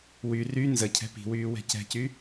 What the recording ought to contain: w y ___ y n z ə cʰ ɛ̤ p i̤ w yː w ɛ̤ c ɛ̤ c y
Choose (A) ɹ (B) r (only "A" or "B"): B